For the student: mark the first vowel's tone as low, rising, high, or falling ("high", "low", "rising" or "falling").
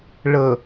low